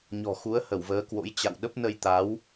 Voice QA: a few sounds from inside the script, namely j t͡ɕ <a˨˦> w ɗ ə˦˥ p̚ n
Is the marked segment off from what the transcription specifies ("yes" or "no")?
yes